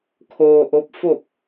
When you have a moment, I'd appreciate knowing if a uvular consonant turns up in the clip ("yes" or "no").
no